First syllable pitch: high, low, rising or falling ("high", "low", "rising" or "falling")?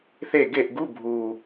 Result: falling